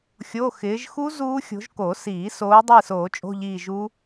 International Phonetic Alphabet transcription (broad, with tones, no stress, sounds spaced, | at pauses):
xʲ o˧˥˧ x ɪː˨˦ ʒ x u˦˥ z uː˦˥ xʲ o̤˨˦ ʒ k o˨˩˦ s iː˨˩˦ s oː˨˦ dˤ iː˦˨ s oː˨˩˦ t͡ʃʼ o̤˧˥˧ ʎ iː˦˨ ʒ u˦˥